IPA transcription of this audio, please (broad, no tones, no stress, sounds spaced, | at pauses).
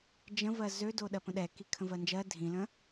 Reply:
d͡ʒ ə̃ v ɜ z ø d o ɗ ɜ p ə̃ ɗ ɛ k i kʰ ə̃ v ɜ n d͡ʒ ɜ dʱ ĩ l ə̃